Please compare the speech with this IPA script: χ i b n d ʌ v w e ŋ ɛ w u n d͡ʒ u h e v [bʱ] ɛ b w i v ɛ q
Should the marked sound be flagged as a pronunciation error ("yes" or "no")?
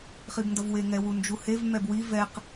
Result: yes